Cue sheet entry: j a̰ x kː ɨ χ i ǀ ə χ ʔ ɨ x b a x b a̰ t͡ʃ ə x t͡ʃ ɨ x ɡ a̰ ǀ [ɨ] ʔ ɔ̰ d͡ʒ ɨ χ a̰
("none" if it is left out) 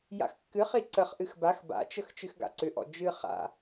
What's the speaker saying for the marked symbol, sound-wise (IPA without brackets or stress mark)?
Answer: ʏ